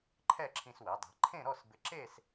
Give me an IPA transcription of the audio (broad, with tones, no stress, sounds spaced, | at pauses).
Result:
ǃʰ ɛ˥˧ ǁʰ ĩ˧ s w ɛ˩˧ dˤ e̤˩˧ ǃʰ ẽ˥˧ ɾ ɔ˥˧ s b ɪ˧ ǁ e˥˧ s